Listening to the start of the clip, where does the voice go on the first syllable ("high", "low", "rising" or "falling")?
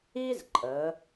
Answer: high